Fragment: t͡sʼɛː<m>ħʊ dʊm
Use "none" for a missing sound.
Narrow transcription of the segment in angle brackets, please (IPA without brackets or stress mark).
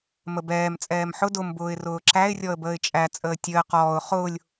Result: m